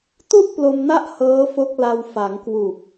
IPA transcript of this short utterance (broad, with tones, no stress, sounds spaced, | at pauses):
t u˥˩ ʔ p l o˧ m n a˦˥ ʔ h ɤː˦˥ f o˦˥ k̚ l a˧ w f a˩˦ ŋ k w u˨˩ k̚